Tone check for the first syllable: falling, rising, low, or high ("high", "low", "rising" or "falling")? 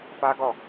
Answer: high